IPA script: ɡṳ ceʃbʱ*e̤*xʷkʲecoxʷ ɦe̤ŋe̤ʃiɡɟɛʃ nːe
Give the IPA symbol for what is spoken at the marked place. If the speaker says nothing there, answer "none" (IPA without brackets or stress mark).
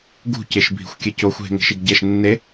i̤